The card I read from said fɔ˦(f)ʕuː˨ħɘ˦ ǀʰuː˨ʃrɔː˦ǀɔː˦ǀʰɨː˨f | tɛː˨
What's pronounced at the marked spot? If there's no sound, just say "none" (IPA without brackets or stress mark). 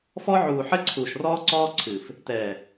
none